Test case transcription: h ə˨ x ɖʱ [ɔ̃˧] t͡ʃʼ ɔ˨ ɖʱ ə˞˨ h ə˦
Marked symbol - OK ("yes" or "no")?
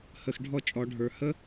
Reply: no